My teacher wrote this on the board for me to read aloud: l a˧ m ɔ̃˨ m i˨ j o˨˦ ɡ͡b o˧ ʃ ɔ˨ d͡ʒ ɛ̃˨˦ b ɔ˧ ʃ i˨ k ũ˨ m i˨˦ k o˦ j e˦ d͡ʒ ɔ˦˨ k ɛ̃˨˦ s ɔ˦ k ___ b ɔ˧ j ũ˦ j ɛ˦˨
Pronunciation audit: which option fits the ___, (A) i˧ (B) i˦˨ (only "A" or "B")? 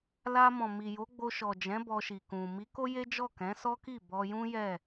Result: B